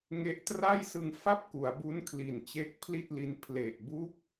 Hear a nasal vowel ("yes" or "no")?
no